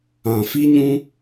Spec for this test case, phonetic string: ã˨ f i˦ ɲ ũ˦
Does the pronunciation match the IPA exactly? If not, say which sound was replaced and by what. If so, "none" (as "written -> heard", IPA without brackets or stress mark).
none